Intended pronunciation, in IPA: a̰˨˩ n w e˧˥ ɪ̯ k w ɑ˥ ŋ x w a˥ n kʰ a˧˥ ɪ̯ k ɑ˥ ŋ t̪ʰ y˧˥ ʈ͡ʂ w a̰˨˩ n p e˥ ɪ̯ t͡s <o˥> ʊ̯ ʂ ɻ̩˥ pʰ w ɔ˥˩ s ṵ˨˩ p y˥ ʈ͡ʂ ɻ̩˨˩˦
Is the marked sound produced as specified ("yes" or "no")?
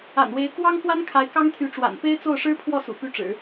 no